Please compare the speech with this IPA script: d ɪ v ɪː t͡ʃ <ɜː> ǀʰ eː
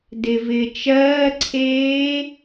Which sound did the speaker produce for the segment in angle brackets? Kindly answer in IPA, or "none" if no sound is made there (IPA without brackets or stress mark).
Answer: ɜː